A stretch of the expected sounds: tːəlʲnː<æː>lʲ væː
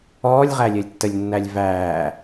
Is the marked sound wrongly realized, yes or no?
yes